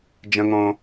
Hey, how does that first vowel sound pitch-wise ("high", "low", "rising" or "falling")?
high